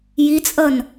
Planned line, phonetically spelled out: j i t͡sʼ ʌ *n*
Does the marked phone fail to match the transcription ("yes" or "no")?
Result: no